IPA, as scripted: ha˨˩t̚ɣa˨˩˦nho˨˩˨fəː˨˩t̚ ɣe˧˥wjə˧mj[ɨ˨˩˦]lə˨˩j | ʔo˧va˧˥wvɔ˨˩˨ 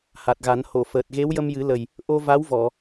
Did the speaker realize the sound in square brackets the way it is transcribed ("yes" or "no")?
yes